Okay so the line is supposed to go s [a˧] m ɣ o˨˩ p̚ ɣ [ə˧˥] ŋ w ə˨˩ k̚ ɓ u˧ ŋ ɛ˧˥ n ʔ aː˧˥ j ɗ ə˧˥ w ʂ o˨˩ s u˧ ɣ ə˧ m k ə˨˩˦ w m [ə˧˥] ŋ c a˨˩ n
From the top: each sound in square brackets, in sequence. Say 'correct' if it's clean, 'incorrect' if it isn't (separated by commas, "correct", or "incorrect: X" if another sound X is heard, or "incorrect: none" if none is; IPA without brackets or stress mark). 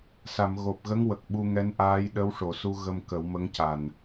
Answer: incorrect: a˨˩˨, correct, correct